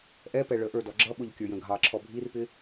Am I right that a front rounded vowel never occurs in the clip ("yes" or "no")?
yes